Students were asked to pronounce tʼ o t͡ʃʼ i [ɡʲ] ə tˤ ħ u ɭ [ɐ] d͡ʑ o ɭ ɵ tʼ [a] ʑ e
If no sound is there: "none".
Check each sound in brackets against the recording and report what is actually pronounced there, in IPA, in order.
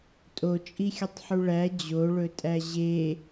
xʲ, æ, æ

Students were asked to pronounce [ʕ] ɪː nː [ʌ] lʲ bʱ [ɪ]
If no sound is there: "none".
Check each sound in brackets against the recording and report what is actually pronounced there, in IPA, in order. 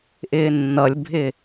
ʔ, ʌ, ɪ

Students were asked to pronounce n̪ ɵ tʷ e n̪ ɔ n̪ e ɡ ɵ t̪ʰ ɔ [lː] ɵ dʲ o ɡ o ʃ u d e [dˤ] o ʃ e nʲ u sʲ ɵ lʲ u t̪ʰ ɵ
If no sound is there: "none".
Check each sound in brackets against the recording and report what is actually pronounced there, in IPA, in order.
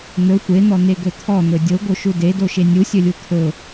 n̪, d

